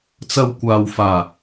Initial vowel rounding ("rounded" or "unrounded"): unrounded